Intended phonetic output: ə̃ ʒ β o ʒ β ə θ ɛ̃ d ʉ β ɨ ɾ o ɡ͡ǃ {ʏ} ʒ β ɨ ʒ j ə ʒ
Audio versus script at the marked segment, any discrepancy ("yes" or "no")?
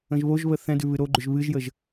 no